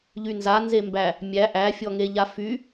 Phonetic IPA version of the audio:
ʎ y n z a n z e m b æ | mʲ æ ʔ æ fʲ ɔ ŋ e ʎ a f y

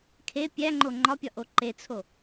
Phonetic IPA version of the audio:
kʰ e pʲ æ ŋ͡ǃ o ŋ͡ǃ ɒ pʲ ɒ ʔ o ǃ e t͡sʰ o

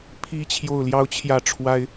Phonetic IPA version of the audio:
pʰ i˦ t͡ɕʰ j o˥˨ ʊ̯ l j ɑ˦ ʊ̯ t͡ɕʰ j ä˥˨ ʈ͡ʂʰ w a˦ ɪ̯

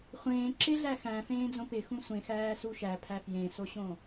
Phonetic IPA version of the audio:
χʷ ẽː ǁ ɪ ɮ æ x æ̃ f ẽː d͡z õ p ɪ x ũ sʷ ẽ x æː s u ʃ æ pʰ æ f j ẽ s o ɕ õ

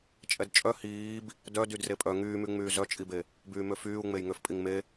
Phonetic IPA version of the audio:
t͡ʃʼ ɛ d t͡ʃʼ œ h iː b | d œ d y d r e pʼ œ ŋ yː m y ŋ͡m yː z œ t͡ʃʼ i b e | b yː m ø f yː u̯ ŋ͡m e j ŋ ø f pʼ i ŋ m e

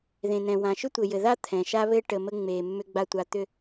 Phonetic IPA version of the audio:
ð ẽ˨ n ɛ̃˨ w ã˨ ʃ ʏ˦ tʷ ɘ˨ j ɘ˨ ð a˦ t̪ʰ ɛ̃˨ ʃ a˦ β ɘ˦ ʈ ə˨ m ə˦ ŋ͡m e˨ mː ʏ˦ ɡ͡b a˦ tʷ a˦ t̪ ʏ˦

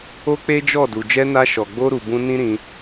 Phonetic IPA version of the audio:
o˦ k͡p e˦ d͡ʒ ɔ˦˨ d u˨ d͡ʒ ɛ˧ n a˧ ʃ ɔ˨ ɡ͡b o˧ ɾ u˨ b ũ˧ n ĩ˦ ɾ ĩ˧

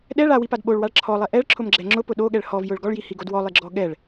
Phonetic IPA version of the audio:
ɗ ɛ ɭ a w i p a d ɓ o ɭ w a ɭ ǁʰ ɔ lˠ ɛ ʔ ɛ ɭ ǁʰ ʊ m ɡ͡ǁ ɛ ŋ͡ǁ ʊ p ʊ ɗ o ɠ ɛ ɭ h ɔ v j ʊ ɭ ɡ ɔ ɭ j i h i ɡ o d w ɔ lˠ i ɡ͡ǁ ɔ ɠ ɛ ɭ

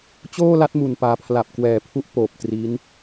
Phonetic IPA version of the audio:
t͡ɕ oː˥˩ l a˦˥ t̚ m u˨˩ n p aː˩˦ pʰ l a˨˩ p̚ k w ɛː˨˩ pʰ u˦˥ ʔ p oː˨˩ p̚ t r i˦˥ n

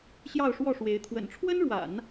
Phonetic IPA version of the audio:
ɕ j ɑ˥˧ ʊ̯ ʂ w ɔ˥˩ ʂ w e˧˥ ɪ̯ t̪ʰ w ə̰˨˩ n ʈ͡ʂʰ w ə˥ n ɻ w a̰˨˩˦ n

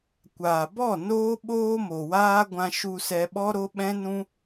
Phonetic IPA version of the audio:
kʷ aː˨ b ɔ˦˨ n oː˦ ɓ oː˦ m o˨ w aː˦ ɡʷ ã˧ ʃ u˧ s ɛ˧ ɓ ɔ˦ ɾ o˦ ɓ ɛ̃˦ n ũ˦

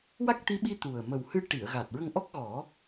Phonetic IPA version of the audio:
w a˦˥ k̚ t̪ i˧˥ ɓ i˧ t̪ u˨˩ ə̯ m ə˨˩ w h ɨ˧ ʈ i˨˩˨ ə̯ ɣ a˨˩ t̚ ɹ ə˧ ŋ ʔ ɔ˦˥ k̚ ɣ ɔ˨˩˦

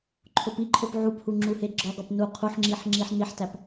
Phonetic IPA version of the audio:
ǃʰ o p i ǃʰ o p ʕ u p h u ŋ͡ǁ u h e ɡ͡ǁ ɒ ɡ ɒ p n u qʰ u ħ ŋ͡ǁ i ħ ŋ͡ǁ i ħ n i ħ t æ p

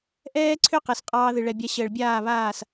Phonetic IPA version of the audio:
ʔ ɛː˦ ǀʰ ʏ˦ q ɛ˨ s qʼ ɑː˧ ð ɨ˨ ɭ ɛ˨ bʲ a˧ ɕ əː˨ ɭ bʲ aː˦˨ β aː˦˨ s

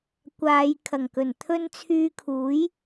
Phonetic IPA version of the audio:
kʷ aː˨˧ j kʰ ɐ˨˩ ŋ k ɵ˨˩ n t̪ʰ ɵ˥ n t͡sʰ yː˧ kʰ uː˨˥ j

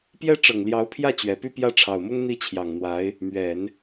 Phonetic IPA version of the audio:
p j ɛ˥ ʈ͡ʂ ɤ˨˩ ŋ l j ɑ˧˥ ʊ̯ pʰ j ä˥˩ t͡ɕ ɥ ɛ˨˩ p y˥˧ p j ä˥˩ ʈ͡ʂʰ ɑ˨˩ ʊ̯ m ʊ˥ ŋ n̪ i˥˩ t͡ɕʰ j ɑ˨˩ ŋ n̪ w a˧˥ ɪ̯ | m ɥ ɛ˨˩˦ n

